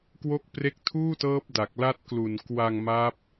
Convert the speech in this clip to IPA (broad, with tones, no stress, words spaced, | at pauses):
kwo˦˥k̚pre˦˥k̚ tʰuː˥˩tɤː˦˥p̚da˨˩k̚ la˦˥t̚klu˨˩nkwa˧ŋ ma˦˥p̚